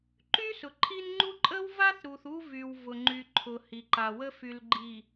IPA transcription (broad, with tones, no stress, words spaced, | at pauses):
ǃy˦sʊ˨ǃʰi˦nŋ͡ǃu˦ ǃʼə˦wva˦θɾu˨θ u˦vy˨w vʊ˨ŋ͡ǃy˨ǃʰʊ˨ hi˨ǃa˨wə˦ fy˨lɡ͡ǃi˨